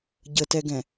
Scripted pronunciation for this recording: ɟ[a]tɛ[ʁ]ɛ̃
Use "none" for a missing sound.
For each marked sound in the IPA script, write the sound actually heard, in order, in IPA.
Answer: ə, ɡ

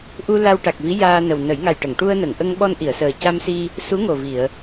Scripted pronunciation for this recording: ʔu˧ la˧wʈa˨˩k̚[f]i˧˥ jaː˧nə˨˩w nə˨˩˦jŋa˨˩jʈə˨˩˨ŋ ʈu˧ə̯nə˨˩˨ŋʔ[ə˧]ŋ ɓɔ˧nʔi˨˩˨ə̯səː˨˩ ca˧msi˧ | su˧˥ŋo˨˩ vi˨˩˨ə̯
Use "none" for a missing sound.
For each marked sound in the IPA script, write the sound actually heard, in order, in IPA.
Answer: v, ə˧

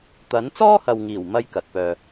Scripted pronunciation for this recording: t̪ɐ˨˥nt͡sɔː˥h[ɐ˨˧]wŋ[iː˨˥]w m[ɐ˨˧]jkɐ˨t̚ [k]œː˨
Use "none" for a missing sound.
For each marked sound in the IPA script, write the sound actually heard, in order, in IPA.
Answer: ɐ˨, iː˨˩, ɐ˥, p

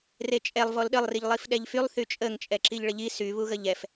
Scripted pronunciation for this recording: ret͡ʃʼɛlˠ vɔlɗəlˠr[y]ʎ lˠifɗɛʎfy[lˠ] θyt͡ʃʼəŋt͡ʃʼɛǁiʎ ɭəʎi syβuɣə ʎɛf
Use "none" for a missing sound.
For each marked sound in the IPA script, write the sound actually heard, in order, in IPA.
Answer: i, lˠ

